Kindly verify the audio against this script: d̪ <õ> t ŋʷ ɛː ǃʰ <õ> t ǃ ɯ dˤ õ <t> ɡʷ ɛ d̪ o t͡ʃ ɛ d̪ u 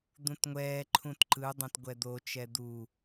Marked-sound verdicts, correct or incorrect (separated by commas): incorrect, incorrect, correct